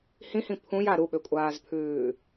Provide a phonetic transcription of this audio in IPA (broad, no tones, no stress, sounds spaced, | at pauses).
h ĩ h ĩ pʰ ũ j a ɾ u ɓ ø kʷʼ aː z pʰ ʉː